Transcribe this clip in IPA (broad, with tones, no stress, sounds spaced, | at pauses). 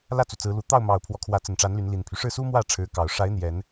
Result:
l ä˥˨ t͡s u˩ t͡s ɹ̩˨˦ l u˨˩ t̪ ɑ˥˨ ʊ̯ m ɑ˨˩ ʊ̯ pʰ w ɔ˦ kʰ w ä˨˦ t͡s ə˨˩ n ʈ͡ʂ a˨˦ n l y˨˦ n l i˨˩ n pʰ y˦ ʂ ɻ̩˥˨ s u˦ m w ä˥˨ ʈ͡ʂʰ ɻ̩˨˦ k ɑ˨˩ ʊ̯ ʂ a˨˦ ɪ̯ n̪ j ɛ˨˦ n